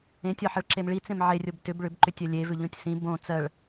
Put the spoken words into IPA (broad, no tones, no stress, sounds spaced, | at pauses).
ẽ tʲ ɒ ħ ɘ ɭ ǁ e m ɭ i t͡s ẽ m ʕ e rʲ o b t ʏ b ɭ ʏ b ǃ ʏ tʲ ɜ lʲ e v ʏ ʎ õ tʲ s ĩ b õ t͡s ɜ ɭ